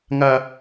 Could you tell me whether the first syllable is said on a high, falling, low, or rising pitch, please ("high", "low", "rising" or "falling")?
high